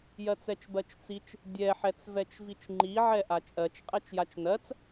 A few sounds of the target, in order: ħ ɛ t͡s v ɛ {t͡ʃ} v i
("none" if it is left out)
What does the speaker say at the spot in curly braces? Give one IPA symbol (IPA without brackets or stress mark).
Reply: t͡ʃ